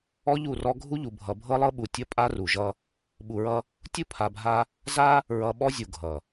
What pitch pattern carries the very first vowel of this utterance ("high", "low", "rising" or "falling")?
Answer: high